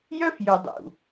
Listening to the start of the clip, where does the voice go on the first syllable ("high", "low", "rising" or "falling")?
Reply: high